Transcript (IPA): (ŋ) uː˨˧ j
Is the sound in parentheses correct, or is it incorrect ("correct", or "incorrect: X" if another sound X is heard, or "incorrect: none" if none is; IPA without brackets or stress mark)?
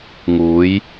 correct